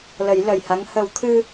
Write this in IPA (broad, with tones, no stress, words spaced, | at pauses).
lə˨˩˦jlə˨˩jha˧˥ŋ hə˨˩˦wt̪ʰɨ˧